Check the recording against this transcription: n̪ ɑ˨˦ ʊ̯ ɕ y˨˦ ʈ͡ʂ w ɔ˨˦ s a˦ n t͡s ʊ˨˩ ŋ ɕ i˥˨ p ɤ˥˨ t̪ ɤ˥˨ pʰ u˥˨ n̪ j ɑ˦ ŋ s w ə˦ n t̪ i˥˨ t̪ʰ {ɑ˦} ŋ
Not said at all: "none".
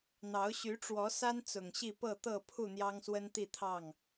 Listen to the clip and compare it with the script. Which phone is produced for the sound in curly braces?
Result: ɑ˥˨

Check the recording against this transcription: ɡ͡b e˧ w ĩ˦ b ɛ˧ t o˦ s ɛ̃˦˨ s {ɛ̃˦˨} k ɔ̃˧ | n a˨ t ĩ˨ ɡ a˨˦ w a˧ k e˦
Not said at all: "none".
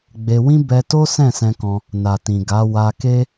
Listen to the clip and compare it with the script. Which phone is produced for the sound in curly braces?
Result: ɛ̃˧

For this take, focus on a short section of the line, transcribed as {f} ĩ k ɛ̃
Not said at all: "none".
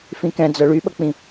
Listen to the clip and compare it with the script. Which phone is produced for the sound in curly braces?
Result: f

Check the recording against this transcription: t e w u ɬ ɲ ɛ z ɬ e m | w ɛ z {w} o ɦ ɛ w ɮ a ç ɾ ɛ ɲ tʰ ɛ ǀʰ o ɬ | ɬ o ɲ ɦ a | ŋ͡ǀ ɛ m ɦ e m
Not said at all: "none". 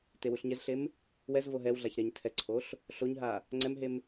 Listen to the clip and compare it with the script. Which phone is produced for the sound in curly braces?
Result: v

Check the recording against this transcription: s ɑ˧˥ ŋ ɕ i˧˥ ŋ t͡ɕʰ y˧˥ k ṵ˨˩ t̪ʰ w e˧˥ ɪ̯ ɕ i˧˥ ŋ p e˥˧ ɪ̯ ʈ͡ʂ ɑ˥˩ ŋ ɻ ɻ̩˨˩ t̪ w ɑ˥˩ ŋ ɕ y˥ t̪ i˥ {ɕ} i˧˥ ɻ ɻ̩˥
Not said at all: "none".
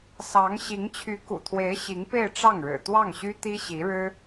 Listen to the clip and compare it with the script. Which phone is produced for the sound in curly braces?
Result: ɕ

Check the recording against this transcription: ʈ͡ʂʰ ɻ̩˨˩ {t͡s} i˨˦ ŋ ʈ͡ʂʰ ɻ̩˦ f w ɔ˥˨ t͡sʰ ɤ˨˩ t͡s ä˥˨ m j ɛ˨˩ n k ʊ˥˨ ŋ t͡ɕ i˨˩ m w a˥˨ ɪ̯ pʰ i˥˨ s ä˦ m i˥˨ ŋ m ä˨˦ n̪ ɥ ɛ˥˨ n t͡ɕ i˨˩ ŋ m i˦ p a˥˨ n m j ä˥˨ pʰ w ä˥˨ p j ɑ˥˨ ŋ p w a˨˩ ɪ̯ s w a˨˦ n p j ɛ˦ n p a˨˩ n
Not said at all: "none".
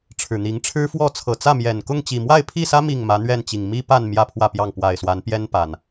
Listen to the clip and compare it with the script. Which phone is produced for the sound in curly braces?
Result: n̪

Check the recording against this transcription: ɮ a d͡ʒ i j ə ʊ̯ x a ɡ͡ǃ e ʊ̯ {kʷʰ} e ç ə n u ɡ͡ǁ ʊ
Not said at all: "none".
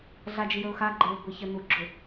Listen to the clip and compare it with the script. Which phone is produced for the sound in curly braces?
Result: ɡʷ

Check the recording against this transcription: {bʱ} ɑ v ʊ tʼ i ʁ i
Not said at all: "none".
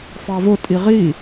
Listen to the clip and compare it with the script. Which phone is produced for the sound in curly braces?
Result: f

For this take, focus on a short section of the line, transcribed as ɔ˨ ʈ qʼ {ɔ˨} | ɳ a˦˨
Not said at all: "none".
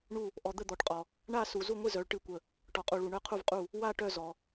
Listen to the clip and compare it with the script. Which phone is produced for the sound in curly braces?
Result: ɔ˨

